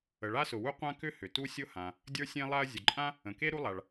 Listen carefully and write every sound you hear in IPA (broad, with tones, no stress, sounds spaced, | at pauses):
ə˩ ɭ a˥ s ʊ˩ w u˥ qʷ ã˥ k ʏ˥ h ʏ˩ t u˥ sʲ ʊ˥ h ã˩ | dʲ ə˞˥ sʲ ẽ˥ lˠ a˥ ɐ̯ zʲ ʊ˩ ǃʼ ã˥ | ə̃˩ k e˥ ɾ u˥ lˠ a˩ ɭ